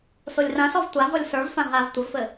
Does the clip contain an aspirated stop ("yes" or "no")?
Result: no